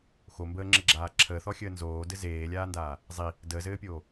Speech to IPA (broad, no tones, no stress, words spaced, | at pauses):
xombəːŋ͡ǁɘɡ͡ǁaː ǁʰəːθɔxʲəː nzoːdɘ zeːlʲaːndaː | zˤi | dəːzɘːpʲoː